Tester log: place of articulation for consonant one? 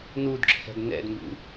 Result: alveolar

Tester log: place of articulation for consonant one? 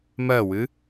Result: labial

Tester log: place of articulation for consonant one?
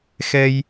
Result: velar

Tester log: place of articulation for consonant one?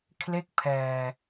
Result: velar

